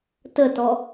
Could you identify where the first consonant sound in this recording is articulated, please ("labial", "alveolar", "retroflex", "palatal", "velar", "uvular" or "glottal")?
alveolar